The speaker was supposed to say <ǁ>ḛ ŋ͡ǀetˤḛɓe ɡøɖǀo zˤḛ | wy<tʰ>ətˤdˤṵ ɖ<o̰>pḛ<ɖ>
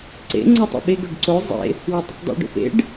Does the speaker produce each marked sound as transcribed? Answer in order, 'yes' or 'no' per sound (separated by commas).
no, no, yes, yes